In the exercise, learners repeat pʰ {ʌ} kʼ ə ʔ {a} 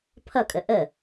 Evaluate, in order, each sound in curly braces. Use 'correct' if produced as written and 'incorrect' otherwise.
correct, incorrect: ə

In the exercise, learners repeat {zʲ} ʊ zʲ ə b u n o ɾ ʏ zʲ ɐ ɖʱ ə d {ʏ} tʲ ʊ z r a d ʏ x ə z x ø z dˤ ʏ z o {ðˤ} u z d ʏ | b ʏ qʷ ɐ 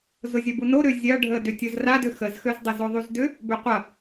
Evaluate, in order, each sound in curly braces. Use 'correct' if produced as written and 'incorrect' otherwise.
incorrect: z, correct, correct

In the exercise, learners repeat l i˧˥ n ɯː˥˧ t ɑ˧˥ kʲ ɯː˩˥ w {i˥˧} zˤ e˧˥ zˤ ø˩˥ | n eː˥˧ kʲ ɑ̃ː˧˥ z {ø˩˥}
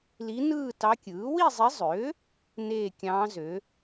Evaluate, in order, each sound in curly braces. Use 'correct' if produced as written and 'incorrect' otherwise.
correct, correct

